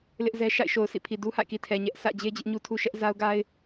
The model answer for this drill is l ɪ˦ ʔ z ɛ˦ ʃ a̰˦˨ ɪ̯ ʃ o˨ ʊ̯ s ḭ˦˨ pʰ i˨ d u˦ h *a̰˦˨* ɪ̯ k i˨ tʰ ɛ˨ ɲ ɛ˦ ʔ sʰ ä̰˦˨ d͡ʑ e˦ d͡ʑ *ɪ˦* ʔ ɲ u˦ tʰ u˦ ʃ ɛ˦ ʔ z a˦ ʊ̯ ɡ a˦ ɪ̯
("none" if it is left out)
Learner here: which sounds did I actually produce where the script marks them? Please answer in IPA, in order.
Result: a̰˦˨, ɪ˦

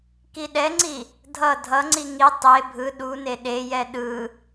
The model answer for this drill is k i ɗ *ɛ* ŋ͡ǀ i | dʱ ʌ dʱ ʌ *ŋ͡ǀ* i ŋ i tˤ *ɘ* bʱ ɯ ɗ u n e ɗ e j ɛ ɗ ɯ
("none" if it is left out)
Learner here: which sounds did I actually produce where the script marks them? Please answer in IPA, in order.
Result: ɛ, ŋ͡ǀ, e

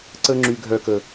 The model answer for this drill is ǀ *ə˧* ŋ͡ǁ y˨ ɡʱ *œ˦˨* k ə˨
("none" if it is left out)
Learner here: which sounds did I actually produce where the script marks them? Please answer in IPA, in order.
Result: ə˧, œ˨

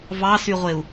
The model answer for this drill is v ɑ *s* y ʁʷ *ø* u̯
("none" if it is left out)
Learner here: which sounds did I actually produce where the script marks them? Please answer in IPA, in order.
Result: s, e

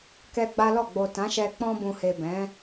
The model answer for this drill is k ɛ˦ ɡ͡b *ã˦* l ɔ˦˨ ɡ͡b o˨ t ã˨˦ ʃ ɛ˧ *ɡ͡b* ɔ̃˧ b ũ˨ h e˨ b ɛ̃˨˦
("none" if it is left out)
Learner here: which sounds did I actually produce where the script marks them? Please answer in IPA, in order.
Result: a˦, k͡p

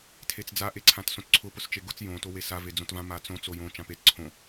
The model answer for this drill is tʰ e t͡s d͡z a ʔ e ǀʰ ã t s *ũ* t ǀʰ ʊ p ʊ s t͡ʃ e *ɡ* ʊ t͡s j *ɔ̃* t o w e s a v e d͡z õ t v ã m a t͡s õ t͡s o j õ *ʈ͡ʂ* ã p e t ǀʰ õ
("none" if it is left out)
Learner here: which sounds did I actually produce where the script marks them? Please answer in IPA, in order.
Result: õ, ɡ, õ, t͡ʃ

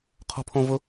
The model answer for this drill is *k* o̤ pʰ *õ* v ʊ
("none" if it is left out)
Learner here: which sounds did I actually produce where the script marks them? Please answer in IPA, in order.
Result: qʰ, õ

